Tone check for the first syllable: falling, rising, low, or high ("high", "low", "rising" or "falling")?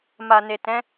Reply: low